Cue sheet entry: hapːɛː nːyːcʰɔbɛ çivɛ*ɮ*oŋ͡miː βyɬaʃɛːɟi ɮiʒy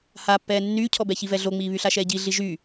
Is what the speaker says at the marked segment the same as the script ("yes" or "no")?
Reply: yes